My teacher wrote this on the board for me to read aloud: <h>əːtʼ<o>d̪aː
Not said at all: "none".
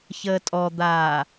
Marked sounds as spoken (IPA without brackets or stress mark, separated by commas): ç, ɔ